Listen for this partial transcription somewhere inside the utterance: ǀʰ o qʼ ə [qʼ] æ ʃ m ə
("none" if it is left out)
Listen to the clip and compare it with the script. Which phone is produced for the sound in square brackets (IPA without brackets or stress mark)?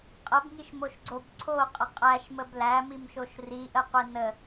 qʼ